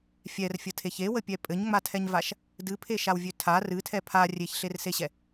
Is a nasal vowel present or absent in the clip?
absent